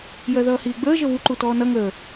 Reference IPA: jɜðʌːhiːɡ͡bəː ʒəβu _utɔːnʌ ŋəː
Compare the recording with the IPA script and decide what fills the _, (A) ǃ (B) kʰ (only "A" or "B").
A